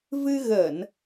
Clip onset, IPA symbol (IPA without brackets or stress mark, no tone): v